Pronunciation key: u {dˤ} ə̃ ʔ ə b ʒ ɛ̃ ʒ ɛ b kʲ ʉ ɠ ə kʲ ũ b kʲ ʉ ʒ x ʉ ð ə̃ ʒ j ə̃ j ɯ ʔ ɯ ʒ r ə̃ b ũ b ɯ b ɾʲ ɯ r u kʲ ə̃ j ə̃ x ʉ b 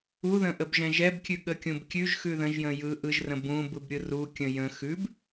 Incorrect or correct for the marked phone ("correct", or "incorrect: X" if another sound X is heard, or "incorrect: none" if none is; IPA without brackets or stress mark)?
incorrect: ð